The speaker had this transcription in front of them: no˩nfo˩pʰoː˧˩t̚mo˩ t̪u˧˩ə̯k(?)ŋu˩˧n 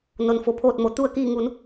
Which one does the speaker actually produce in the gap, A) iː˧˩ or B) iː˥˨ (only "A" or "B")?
A